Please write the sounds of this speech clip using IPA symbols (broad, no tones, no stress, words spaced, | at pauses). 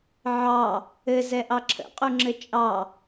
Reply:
ʕɑ | ɘ zɛʔɑǁʰə̰ qʼuŋ͡ǁɘt͡ʃʼɑ